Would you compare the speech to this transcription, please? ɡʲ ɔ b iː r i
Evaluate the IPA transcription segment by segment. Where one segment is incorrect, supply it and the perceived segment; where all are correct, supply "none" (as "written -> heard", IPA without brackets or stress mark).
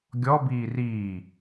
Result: i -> iː